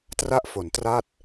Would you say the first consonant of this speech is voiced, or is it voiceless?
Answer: voiceless